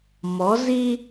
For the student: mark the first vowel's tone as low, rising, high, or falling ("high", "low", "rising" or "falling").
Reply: rising